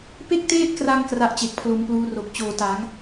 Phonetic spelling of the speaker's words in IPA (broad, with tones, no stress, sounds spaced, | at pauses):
p e˥˩ k̚ t eː˥˩ t̚ k r a˧ ŋ k r a˦˥ ʔ t͡ɕ e˨˩ k̚ pʰ l o˧ m p l uː˦˥ r o˨˩ k̚ t͡ɕ oː˨˩ t a˩˦ ŋ